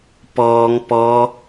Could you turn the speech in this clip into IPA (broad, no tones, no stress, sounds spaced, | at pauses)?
p ɔː ŋ p ɔ